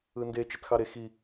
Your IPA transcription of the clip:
ɯ n d e t͡ʃ e t x ɑ ɾ e x i

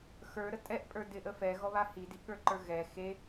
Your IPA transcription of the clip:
x ə˞ ɾ ə tʼ ɛ ʔ pʼ ə˞ d ɪ ʔ ə f ɛ ɣ ɔ β a h i d i ʔ ɠ ə˞ ǃ ə˞ ɣ ɛ x e

